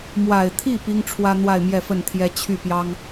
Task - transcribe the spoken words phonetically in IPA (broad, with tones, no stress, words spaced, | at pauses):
mwa˨˩ɪ̯t̪ʰi˥˩ pi˥ŋʈ͡ʂʰwä˥ n̪wa˥˧ɪ̯mjɛ˥˧fə˥˩nt̪ʰjɛ˥ t͡ɕʰy˥˩pjɑ˥ŋ